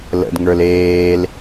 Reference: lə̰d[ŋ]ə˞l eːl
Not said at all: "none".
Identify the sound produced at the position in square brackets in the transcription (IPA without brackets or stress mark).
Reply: ŋ